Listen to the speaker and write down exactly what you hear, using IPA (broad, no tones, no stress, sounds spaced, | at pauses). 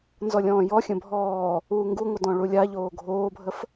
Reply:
n z ɔ lʲ ɔ̃ː j ɔ xʲ ə̃ bʱ ɔː | uː ŋ ɡ u ŋʷ ə d ɔ̃ ɭ u lʲ a ʎ oː ɡʱ oː bʱ ə f